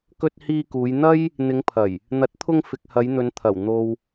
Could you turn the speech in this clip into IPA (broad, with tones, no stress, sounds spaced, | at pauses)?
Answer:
k ɵ˧ t̚ h iː˧ k uː˨˧ j n̪ ɐ˥ j | n̪ ɪ˨˧ ŋ pʰ ɐ˨˩ j | n̪ ɐ˨˥ t̚ t̪ʰ ʊ˧ ŋ f ɪ˨ k̚ h ɐ˨˧ j n̪ ɵ˨˧ n t̪ʰ ɐ˨˩ w n̪ o˨ w